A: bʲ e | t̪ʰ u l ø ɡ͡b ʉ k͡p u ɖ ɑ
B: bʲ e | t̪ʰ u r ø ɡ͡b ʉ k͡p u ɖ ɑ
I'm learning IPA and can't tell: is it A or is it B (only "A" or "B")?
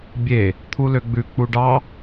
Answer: A